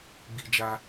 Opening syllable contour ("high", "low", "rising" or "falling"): high